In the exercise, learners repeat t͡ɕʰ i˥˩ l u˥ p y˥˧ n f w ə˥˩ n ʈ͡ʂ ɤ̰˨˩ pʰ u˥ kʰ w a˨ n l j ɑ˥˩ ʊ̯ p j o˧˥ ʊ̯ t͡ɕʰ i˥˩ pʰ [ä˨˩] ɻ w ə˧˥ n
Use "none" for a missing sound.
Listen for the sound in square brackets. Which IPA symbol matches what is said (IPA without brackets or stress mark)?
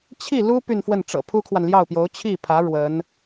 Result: ä˧˥